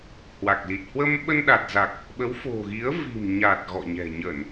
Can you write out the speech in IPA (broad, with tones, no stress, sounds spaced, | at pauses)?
h w a˨˩ k̚ l i˨˩ t̚ h w ə˧ m ɓ ə˧ n ɗ a˨˩ t̚ z a˨˩ k̚ | ɓ ə˨˦ w f o̤˨˩ ɣ i˨˦ ə̯ v i̤˨˩ m ɲ a˨˩ t̚ ɣ ɔ̰˧˨ ɲ ɛ̤˨˩ ɲ ə˧˩˨ n